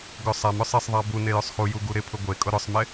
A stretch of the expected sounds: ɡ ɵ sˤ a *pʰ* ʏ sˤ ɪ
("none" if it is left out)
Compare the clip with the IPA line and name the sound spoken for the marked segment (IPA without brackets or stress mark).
m